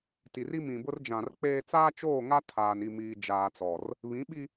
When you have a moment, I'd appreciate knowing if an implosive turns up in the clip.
yes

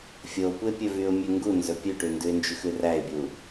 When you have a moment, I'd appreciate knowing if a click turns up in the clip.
no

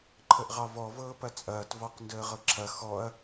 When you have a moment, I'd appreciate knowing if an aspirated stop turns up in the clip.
yes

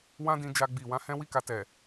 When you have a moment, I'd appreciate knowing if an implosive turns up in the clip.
no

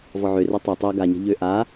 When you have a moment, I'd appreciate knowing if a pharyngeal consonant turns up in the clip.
yes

